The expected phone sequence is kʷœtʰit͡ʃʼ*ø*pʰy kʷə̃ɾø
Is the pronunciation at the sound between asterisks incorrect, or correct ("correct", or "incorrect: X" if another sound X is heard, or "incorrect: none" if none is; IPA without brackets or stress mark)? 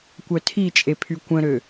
incorrect: e